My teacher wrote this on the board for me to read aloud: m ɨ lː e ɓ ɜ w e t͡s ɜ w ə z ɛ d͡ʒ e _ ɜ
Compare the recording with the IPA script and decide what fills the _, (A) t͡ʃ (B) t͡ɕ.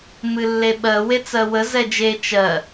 A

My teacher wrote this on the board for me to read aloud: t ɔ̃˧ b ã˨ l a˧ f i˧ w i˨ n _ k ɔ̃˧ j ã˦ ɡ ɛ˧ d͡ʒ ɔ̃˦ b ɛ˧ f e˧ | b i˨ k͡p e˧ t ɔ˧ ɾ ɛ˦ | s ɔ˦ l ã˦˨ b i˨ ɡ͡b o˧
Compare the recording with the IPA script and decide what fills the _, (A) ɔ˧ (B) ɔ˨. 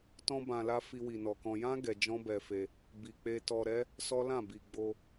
B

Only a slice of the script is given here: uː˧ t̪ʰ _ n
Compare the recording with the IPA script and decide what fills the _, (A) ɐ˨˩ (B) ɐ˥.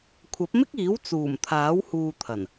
A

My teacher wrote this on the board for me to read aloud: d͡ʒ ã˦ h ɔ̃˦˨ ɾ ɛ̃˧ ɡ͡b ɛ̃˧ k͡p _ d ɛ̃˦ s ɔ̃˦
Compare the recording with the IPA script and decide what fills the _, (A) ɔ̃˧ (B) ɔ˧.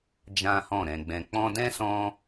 A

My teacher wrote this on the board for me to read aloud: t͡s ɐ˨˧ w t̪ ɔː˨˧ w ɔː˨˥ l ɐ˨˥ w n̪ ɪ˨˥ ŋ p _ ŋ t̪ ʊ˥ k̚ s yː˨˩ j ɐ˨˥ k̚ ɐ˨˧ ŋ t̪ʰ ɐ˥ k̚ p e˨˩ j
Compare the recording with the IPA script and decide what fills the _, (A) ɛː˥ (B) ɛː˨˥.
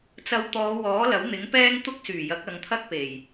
A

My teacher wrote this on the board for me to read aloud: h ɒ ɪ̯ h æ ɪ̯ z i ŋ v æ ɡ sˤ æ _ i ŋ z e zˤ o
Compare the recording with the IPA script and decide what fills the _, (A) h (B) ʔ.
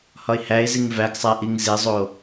B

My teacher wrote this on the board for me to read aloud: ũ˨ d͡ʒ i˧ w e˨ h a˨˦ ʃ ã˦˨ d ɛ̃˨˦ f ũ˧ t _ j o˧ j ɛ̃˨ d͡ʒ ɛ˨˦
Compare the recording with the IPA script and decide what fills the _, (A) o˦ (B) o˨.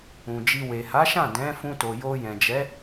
B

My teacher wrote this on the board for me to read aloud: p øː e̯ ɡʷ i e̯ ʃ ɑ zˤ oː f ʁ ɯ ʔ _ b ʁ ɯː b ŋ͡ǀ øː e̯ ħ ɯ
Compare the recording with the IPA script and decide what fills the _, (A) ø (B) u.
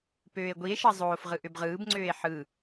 A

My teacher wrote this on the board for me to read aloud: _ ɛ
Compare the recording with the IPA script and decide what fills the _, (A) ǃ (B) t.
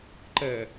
A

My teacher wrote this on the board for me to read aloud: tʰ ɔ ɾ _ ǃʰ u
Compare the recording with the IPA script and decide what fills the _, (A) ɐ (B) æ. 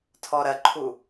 A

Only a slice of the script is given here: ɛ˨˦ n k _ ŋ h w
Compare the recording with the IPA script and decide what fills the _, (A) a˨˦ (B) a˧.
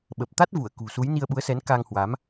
B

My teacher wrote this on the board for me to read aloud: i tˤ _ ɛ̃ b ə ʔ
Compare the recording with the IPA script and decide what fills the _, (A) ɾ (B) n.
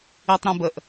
A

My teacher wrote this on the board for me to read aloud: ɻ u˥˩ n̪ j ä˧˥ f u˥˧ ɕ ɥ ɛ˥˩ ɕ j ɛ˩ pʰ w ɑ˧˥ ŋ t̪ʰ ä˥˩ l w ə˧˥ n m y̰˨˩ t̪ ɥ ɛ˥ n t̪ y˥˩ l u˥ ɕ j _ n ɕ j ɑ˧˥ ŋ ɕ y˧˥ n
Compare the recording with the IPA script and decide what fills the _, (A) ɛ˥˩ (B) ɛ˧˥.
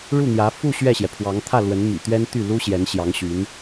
B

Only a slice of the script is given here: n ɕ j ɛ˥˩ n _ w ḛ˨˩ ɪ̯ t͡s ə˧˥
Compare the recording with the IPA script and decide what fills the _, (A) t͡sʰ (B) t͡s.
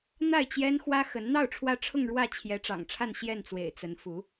B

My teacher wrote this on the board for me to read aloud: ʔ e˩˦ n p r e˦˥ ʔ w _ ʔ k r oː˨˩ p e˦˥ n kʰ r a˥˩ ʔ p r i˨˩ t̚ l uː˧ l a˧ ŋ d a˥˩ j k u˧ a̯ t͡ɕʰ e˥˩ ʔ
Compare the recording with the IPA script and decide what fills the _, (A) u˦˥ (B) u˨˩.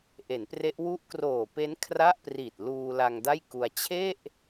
A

